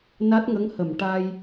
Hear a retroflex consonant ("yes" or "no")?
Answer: yes